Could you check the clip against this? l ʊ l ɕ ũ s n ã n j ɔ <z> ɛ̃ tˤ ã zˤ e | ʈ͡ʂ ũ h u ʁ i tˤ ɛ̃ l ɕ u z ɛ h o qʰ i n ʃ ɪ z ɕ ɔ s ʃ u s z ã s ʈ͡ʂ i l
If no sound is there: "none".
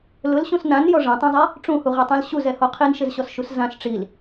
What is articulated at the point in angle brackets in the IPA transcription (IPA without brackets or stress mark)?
ʐ